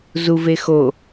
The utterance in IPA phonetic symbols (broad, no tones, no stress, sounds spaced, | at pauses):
z u v e x o